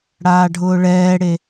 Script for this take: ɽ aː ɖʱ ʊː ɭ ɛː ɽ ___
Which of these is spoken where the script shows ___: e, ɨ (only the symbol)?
e